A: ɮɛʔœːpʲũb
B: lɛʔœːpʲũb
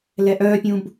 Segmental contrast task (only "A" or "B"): B